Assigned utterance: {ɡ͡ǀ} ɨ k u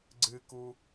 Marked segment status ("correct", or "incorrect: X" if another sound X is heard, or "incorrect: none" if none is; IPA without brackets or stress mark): correct